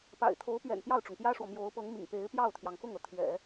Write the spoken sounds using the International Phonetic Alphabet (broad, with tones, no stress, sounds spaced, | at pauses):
p a̰˨˩ ɪ̯ t̪ʰ o˧˥ ʊ̯ p ɥ ɛ̰˨˩ n p j ɑ˥˩ ʊ̯ ʈ͡ʂ ʊ˩ ŋ p j ä˥ ʂ w ɔ˨ m j o˧˥ ʊ̯ p ɤ˧˥ ŋ m ḭ˨˩ ŋ p e˧˥ ɪ̯ p j ɑ˥˩ ʊ̯ t̪ʰ j ɑ˩ ŋ k ʊ˥˩ ŋ ɤ˩ t̪ʰ ɥ ɛ̰˨˩˦